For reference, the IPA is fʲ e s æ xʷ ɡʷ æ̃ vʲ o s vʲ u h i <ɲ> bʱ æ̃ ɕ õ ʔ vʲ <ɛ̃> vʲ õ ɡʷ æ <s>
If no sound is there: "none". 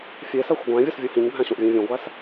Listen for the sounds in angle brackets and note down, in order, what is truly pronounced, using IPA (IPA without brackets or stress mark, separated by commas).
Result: ɲ, æ̃, s